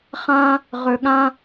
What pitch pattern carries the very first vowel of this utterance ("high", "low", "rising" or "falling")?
high